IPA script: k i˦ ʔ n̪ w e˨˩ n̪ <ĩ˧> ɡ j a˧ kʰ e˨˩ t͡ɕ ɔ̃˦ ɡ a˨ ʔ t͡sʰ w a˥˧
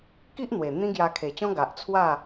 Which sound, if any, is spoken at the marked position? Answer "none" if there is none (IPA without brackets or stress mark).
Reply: ĩ˦